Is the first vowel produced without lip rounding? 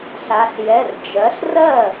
yes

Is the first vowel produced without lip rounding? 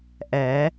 yes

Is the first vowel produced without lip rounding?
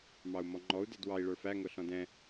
yes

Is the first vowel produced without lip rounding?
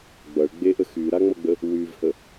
yes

